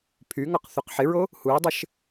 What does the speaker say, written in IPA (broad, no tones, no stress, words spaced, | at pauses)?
pʰyŋɔq θoqħɪɹo | huə̯dˤɘʃ